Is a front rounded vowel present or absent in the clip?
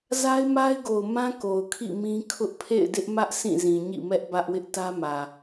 absent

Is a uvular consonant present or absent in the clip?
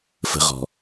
present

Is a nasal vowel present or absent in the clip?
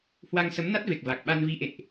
absent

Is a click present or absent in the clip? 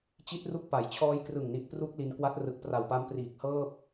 absent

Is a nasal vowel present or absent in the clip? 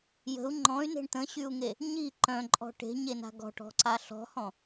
present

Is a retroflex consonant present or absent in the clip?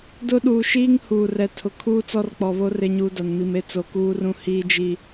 absent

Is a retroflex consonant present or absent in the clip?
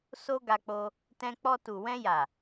absent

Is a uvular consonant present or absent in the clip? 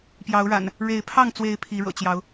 absent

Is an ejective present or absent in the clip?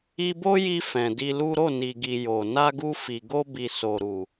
absent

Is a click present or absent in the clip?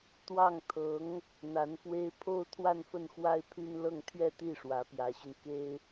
absent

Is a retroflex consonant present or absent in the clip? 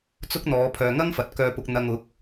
absent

